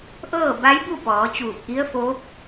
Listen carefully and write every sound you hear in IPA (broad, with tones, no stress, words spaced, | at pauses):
ʔɤː˥˨ba˧˥jbu˥˨pɔː˩˧ t͡ɕuː˧˩p̚ʔi˧˥ə̯foː˧˥p̚